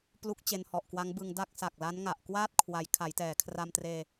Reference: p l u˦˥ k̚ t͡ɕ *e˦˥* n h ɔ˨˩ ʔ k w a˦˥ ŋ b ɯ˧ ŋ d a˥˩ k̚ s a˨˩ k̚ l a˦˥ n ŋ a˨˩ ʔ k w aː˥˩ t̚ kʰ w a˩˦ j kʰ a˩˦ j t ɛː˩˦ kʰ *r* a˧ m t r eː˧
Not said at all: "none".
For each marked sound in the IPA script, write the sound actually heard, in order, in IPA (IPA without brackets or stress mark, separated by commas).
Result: e˧, r